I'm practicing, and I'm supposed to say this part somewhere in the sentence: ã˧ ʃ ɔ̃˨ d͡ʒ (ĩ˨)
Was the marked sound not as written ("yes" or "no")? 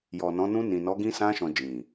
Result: no